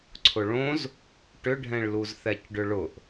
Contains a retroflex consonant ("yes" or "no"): yes